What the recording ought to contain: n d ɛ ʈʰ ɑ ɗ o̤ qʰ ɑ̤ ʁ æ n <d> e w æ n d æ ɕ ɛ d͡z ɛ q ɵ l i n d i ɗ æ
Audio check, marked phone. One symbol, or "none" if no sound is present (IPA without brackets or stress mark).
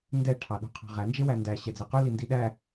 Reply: d͡ʒ